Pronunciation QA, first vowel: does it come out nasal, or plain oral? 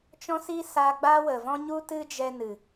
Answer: nasal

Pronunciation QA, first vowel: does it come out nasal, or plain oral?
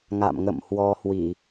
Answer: oral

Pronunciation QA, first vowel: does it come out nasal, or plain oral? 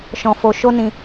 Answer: nasal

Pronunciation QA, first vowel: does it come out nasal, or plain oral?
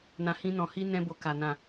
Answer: nasal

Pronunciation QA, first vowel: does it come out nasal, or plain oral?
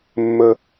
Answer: oral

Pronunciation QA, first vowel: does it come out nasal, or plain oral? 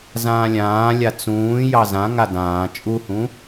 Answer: nasal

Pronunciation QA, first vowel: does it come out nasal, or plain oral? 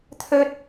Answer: oral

